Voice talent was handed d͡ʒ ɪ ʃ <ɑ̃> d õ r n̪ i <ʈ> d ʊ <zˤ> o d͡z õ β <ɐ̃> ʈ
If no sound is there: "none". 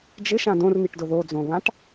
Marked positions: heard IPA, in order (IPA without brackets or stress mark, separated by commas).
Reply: ã, ʈ, ð, ã